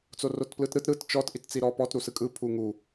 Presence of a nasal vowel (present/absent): absent